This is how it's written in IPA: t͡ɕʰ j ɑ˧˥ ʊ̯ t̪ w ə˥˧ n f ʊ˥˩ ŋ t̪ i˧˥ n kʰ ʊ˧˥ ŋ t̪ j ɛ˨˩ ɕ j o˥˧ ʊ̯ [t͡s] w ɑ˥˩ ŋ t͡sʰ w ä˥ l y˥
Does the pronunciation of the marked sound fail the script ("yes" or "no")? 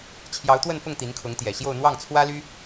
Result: yes